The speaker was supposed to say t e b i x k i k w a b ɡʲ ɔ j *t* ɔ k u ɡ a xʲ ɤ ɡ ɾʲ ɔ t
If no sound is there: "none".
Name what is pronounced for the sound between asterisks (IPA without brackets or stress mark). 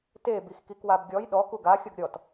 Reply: ɗ